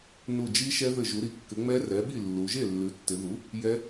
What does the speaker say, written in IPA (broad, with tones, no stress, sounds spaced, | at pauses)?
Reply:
n u˧˩ d͡ʒ i˦˥ ʃ ɛ˦˥ ð ɘ˧˩ ʒ u˩˧ ɾ i˩˥ kː ɘ˩˧ ŋ͡m ɛ˦˥ r ɛ˩˥ ɓ i˥˩ lː u˩˧ ʒ e˥˩ lː ʉ˩˥ tː ɪ˩˧ ð u˩˥ | j ɛ˦˥